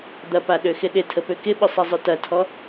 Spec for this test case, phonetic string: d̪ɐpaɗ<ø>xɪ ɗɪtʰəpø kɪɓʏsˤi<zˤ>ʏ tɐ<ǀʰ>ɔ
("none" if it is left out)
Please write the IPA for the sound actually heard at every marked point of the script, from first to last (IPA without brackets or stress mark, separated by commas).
ø, zˤ, tʰ